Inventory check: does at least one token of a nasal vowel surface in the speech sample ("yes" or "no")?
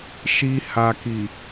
no